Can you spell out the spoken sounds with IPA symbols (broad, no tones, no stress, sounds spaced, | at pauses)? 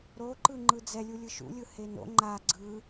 ɾ o ǃ ɯ ŋ͡ǃ ɯ d͡z ɛ lʲ u lʲ ɯ ʃ ṵ lʲ ɯ h e n o̰ ŋ͡ǃ a ɡ͡ǀ ɯ